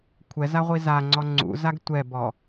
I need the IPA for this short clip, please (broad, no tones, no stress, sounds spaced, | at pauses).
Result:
kʷʰ ɛ z a ʁʷ i z a ŋ͡ǀ ɔ ŋ͡ǀ ṵ z a ɡ tʷ ɛ b ɔ